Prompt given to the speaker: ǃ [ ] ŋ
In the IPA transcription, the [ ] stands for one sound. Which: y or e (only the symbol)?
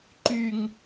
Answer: y